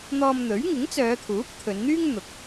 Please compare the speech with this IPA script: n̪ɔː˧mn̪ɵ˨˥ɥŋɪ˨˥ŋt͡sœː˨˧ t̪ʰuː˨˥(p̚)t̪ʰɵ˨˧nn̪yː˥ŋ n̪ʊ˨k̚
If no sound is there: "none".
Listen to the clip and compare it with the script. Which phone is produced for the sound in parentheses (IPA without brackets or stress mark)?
p̚